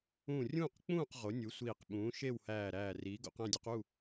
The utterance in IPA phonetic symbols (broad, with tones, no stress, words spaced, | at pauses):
ũː˥˨ rʲũː˥˨qk͡pũː˥˨q ʁo˩˥nʲu˩˥ sʷiː˧˩qɓũː˩˥ ʃe˥˨whæː˧˩ɾæː˧˩ riː˩˥ɡo̰˩˥q æ̃˥˨dʲu˩˥q u˥˨